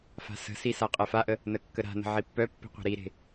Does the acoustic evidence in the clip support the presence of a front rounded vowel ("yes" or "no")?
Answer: yes